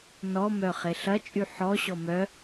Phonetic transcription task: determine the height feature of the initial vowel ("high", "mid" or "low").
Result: mid